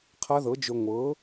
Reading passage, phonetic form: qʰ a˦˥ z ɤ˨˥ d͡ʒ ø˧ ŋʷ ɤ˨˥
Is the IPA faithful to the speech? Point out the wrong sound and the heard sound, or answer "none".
z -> ð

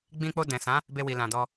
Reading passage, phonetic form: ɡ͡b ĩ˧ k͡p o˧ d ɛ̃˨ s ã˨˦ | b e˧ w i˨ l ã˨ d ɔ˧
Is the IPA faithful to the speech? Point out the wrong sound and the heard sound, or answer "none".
none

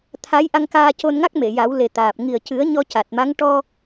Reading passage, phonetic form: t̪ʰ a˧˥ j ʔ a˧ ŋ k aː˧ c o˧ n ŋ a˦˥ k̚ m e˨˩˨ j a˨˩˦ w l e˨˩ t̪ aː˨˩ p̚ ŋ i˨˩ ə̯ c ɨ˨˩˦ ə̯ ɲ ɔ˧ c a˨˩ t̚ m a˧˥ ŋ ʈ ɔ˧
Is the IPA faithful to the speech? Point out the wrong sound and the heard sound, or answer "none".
none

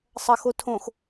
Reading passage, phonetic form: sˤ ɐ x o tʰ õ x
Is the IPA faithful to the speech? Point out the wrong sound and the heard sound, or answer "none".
none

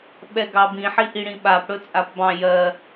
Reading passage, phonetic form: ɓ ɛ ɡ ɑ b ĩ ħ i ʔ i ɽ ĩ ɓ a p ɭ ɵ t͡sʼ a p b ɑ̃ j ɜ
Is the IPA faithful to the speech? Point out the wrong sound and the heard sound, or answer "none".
ɭ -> ɽ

